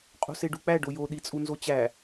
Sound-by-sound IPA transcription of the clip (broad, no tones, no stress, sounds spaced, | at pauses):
qʼ o̤ s e ɖ u k͡p æ ɖ o j o ɗ i t͡sʼ u n z o t͡ɕ æ